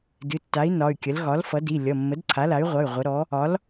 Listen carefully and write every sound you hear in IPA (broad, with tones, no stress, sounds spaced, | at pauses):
d ɨ˩˧˩ tː a˩˥ i̯ n ɒ˩˧˩ y̯ kʲ ə˩˥ l ɣ ɒ˩˥ l f ʌ˩˥ d i˩˧˩ lʲ ʌ˩˧˩ mː ə˩˥ d ǀʰ a˩˥ l a˩˥ y̯ ʁʷ ʌ˩˧˩ y̯ ʁʷ ə˩˥ ɾ ɔ˩˥ | ɒ˩˥ l